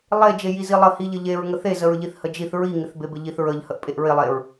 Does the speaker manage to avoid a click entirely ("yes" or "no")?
yes